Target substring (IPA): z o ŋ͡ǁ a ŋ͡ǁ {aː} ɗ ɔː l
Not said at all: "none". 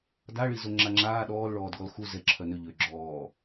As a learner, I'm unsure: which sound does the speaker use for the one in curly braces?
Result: aː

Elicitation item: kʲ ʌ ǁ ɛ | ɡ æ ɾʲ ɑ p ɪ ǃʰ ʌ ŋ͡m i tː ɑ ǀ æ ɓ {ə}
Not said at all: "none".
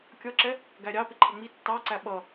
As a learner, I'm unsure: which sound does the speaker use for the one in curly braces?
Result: ʌ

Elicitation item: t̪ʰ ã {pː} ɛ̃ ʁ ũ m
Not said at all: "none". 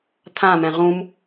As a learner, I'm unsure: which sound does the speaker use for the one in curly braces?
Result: m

